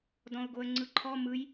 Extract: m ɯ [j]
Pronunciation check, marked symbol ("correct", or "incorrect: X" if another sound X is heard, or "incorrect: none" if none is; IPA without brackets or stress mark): correct